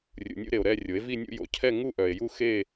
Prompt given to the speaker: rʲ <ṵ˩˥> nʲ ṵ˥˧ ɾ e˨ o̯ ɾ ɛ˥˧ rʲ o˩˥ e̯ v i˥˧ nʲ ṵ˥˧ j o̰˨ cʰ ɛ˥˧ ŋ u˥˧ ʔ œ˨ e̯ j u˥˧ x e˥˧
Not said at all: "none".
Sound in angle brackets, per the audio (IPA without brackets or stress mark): ṵ˨